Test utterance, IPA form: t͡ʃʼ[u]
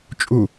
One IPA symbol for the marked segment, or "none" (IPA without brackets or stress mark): u